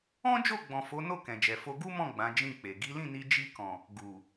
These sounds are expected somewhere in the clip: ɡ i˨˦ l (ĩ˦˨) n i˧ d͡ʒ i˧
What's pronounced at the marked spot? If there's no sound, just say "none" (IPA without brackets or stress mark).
ĩ˦˨